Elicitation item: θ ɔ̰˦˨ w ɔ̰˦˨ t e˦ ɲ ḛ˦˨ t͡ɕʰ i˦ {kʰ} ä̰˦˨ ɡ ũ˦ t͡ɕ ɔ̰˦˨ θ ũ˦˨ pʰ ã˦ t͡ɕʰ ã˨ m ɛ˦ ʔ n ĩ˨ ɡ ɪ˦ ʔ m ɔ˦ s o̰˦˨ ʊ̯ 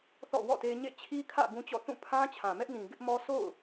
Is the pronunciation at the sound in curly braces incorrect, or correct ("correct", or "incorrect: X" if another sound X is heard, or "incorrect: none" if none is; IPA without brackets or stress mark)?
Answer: correct